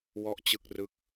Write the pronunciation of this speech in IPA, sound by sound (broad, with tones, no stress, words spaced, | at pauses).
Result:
wɔ˥˩ʔt͡ɕɯ˥˩k̚rɯ˥˩k̚